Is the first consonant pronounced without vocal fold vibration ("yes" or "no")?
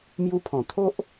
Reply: no